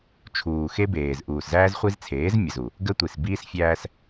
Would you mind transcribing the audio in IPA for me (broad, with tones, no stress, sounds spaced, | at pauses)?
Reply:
t͡ʃʰ uː˨ x e˦ b eː˨ z ʔ uː˨ s z æː˦ z χʷ i˦ z t͡sʰ eː˨˦ z mʲ ə˨ z u˨ | ɡ ə˦ tʷ i˨ s b iː˦ s fʲ æː˦ s